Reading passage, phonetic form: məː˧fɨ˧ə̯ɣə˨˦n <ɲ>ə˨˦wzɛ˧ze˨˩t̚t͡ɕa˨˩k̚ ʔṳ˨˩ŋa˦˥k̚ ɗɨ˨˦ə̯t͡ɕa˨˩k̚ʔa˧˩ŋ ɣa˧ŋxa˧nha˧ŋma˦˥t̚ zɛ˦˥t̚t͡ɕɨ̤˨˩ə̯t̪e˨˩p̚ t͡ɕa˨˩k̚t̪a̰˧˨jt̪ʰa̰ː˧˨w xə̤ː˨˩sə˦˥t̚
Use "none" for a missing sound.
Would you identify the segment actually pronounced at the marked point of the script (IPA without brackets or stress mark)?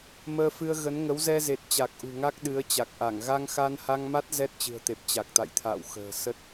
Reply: ŋ